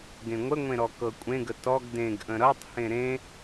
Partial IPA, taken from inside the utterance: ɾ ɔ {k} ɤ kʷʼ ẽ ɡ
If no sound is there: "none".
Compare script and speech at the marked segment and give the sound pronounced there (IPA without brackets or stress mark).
k